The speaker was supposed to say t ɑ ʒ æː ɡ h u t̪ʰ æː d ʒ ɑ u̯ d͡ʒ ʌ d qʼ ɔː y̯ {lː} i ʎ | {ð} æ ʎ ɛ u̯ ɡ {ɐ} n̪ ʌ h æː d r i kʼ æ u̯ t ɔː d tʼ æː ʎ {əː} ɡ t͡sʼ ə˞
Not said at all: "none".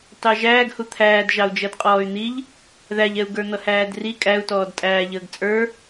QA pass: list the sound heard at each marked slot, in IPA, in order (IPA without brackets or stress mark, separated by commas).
n̪, ð, ə˞, əː